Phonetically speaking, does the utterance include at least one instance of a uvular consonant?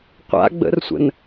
yes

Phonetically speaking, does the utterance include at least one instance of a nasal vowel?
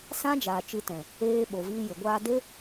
yes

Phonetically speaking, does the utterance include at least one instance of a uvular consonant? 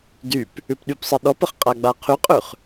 yes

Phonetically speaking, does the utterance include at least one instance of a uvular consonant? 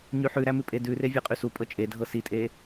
yes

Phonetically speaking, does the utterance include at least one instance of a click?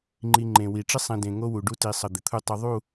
yes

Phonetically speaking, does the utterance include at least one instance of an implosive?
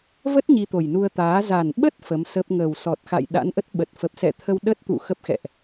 yes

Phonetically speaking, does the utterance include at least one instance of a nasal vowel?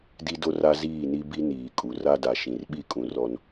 yes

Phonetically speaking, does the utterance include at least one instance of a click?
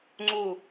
yes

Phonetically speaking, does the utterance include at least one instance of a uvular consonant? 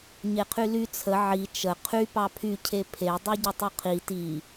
yes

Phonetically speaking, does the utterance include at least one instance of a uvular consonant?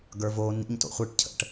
yes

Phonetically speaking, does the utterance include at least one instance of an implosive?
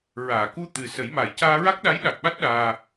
yes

